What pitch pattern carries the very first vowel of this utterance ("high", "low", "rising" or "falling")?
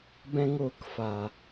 high